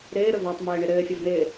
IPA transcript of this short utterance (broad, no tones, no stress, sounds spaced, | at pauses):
ɾ ɪː ɾ ɵ v a tˤ m ɘː ɳ ɪ ɾ ɘː fʲ ə v n ɪː